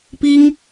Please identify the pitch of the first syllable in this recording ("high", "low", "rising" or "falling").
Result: high